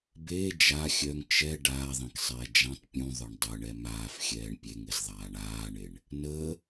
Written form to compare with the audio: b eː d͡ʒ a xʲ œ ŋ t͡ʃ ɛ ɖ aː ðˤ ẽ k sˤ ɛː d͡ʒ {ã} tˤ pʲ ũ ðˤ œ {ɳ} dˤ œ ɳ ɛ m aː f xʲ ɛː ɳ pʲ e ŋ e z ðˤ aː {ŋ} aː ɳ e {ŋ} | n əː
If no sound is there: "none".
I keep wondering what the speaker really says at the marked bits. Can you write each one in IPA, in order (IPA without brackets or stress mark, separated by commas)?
ã, ɳ, ɳ, ɳ